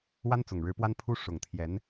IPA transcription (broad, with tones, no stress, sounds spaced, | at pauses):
w a˥ n t͡s ʊ˨˩ ŋ ɻ ɻ̩˧˥ p w a˥ n pʰ u˥ ʂ ʊ˨˩ ŋ t̪ʰ j ɛ˧˥ n